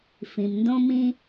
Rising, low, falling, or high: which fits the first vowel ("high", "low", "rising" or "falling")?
low